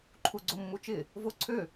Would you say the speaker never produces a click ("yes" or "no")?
no